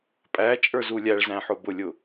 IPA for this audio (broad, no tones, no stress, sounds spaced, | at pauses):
pʼ æ t͡ʃʼ ə˞ z u lʲ æ ɭ z æ̃ ħ ʊ b ʊ lʲ ʊ